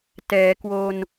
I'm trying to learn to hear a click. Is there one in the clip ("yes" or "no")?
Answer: no